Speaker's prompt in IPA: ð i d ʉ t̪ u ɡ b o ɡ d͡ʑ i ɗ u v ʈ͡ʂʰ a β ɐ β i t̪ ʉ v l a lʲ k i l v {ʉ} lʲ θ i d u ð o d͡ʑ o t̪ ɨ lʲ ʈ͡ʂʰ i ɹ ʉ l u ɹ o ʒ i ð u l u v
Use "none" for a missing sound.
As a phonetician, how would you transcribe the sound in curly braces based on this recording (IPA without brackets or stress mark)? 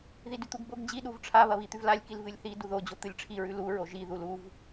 ɨ